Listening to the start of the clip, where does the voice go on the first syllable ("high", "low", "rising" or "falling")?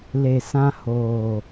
low